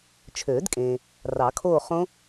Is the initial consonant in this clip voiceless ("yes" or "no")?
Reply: yes